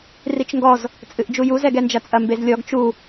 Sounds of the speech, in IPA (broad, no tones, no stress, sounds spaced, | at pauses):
r i t͡ʃ ŋ ɡ ɔ z | t͡sʼ ɨ ʔ d͡ʒ u j u z ɛ ɡ ɛ n d͡ʒ ɐ t͡sʼ ɐ m b e z lʲ ɔ ɡ t͡ʃ u